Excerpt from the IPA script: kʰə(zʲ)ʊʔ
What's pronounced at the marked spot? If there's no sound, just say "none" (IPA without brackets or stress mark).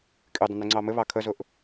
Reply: z